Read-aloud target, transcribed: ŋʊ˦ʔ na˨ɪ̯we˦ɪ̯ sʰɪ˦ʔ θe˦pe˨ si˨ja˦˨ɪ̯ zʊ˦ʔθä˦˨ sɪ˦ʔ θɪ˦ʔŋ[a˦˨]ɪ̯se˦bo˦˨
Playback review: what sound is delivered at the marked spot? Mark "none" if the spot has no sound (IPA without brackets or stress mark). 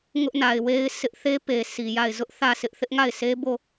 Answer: a˦˨